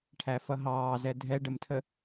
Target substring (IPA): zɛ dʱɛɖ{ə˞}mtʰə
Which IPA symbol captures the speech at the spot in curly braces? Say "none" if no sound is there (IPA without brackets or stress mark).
ə